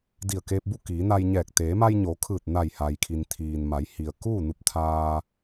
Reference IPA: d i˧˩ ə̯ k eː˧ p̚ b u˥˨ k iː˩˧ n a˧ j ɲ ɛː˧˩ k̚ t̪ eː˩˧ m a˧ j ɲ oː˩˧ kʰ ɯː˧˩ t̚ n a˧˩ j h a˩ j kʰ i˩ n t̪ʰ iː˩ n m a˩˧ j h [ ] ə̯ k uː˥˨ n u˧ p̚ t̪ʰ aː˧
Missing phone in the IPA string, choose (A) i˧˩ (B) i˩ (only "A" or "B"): B